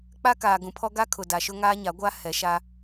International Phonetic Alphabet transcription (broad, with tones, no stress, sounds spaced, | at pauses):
k͡p a˦ k aː˨ ɡ ũ˨ pʰ ɔ˦ ɡ a˦ kʰ ʊ˨ d a˨ ʃ ʊ˦ ŋ aː˦ ɲ a˨˦ ɡʷ a˦ h ɛ˨˦ ʃ a˦